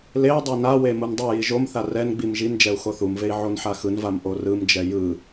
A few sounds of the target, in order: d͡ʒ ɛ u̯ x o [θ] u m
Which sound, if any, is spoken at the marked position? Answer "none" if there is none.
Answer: θ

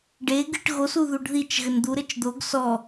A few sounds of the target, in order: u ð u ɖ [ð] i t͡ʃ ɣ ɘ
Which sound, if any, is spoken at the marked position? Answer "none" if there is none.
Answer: ð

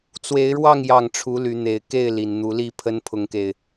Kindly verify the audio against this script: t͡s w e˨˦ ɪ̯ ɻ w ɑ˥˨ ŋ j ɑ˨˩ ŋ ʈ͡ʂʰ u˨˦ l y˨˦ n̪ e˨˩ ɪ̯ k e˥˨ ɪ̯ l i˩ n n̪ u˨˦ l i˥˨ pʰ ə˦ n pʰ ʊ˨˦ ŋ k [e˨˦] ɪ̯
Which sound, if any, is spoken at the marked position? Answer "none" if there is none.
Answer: e˨˩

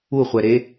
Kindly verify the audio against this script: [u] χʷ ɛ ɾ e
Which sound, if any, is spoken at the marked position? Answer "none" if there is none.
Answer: u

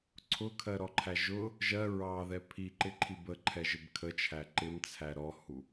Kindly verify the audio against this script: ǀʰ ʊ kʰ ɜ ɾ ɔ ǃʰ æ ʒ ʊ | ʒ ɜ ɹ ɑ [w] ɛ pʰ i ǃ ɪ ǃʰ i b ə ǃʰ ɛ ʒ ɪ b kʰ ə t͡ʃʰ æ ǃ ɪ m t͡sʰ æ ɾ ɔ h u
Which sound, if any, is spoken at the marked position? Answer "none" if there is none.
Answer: ð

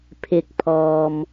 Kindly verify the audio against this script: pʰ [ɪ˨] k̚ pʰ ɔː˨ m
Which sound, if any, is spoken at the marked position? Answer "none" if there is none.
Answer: ɪ˨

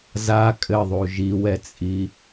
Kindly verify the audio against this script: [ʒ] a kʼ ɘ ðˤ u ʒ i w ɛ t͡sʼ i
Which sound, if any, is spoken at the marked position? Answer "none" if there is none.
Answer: z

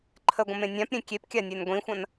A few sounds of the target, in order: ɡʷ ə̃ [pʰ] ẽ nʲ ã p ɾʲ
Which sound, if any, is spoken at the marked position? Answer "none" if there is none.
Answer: m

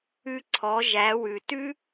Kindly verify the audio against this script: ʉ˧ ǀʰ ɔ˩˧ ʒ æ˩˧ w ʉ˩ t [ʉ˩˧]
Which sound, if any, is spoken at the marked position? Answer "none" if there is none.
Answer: ʉ˥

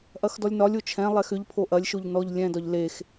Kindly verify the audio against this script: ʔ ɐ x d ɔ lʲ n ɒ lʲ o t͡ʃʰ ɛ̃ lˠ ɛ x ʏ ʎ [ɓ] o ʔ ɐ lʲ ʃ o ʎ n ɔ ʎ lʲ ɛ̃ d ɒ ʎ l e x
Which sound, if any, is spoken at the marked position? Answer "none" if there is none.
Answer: pʰ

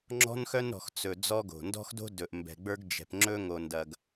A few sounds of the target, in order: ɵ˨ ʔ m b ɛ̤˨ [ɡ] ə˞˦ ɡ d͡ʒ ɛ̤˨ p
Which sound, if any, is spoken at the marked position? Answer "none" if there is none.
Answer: ɡ͡b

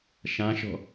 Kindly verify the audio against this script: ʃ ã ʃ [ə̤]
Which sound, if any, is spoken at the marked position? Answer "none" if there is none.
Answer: ɔ̤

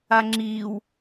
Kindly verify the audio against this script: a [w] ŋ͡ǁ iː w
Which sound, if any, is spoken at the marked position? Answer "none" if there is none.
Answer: none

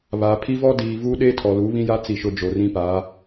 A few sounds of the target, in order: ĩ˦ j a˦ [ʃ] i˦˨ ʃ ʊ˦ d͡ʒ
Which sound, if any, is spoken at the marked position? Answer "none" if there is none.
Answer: t͡s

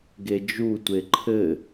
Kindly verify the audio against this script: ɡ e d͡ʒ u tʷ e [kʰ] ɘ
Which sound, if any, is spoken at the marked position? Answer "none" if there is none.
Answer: ǃʰ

